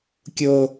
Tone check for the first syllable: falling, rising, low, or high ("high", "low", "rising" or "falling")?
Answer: low